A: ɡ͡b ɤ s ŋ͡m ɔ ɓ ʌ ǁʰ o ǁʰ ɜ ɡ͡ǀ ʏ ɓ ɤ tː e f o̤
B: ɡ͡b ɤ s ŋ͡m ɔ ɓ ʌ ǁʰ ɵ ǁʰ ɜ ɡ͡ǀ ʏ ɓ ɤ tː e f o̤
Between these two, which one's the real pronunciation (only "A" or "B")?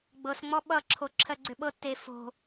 A